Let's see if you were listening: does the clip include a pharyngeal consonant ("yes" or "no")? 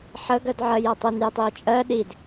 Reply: yes